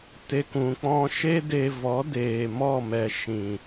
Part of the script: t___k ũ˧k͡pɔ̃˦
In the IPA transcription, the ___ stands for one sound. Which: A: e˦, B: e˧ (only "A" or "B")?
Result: A